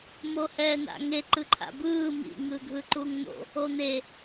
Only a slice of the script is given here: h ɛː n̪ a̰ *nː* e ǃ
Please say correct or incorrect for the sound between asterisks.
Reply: incorrect